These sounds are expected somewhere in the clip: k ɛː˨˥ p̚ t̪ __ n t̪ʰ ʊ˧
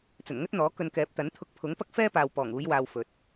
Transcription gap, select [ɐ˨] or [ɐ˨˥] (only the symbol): ɐ˨˥